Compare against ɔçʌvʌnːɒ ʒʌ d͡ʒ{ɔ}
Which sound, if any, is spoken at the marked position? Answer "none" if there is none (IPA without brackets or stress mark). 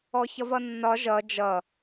ʌ